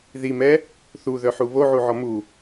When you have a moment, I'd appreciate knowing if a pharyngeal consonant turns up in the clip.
yes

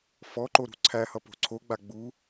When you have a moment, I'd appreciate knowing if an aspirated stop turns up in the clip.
yes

